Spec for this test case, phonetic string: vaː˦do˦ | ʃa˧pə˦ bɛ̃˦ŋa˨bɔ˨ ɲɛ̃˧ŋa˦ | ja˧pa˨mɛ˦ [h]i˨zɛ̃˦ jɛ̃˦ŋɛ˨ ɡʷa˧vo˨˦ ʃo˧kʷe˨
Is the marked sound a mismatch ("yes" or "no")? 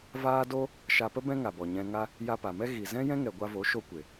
yes